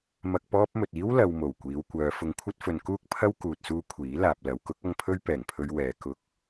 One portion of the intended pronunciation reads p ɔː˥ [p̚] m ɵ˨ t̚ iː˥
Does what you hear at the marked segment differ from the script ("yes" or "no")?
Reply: no